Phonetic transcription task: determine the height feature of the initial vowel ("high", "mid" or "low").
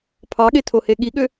low